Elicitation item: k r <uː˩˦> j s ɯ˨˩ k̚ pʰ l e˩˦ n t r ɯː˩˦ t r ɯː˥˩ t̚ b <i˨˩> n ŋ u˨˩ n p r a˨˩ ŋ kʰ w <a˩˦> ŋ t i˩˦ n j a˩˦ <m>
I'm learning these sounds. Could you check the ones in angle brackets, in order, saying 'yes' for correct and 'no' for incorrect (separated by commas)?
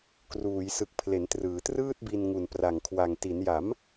yes, no, no, yes